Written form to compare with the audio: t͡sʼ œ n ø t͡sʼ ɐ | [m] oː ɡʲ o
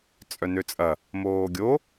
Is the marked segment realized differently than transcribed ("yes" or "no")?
no